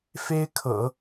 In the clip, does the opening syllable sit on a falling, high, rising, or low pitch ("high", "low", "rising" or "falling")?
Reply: high